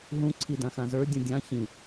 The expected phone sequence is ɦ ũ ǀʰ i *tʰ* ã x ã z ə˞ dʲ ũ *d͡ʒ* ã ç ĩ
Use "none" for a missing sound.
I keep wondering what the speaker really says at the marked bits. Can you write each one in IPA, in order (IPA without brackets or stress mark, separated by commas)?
d, dʲ